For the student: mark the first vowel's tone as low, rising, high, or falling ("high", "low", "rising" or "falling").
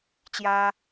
high